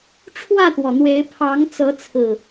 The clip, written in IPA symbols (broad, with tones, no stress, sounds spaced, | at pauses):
ʈ͡ʂʰ w ä˥˨ t̪ w ɔ˩ n̪ w e˨˦ ɪ̯ pʰ ɑ˨˦ ŋ t͡s ɤ˨˦ t͡sʰ ɹ̩˨˩